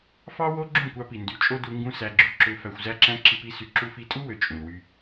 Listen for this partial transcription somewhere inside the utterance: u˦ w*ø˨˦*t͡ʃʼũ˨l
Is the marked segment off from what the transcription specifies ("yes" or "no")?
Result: yes